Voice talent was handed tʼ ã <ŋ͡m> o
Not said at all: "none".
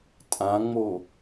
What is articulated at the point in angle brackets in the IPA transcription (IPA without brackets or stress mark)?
ŋ͡m